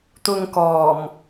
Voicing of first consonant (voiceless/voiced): voiceless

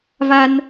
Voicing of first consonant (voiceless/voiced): voiced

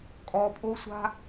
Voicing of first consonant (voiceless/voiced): voiceless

